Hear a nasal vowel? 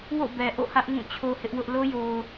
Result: yes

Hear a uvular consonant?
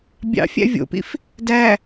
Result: no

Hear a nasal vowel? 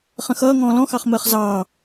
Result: yes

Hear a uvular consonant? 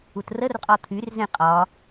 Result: yes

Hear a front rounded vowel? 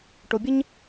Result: no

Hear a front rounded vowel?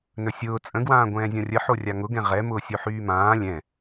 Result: yes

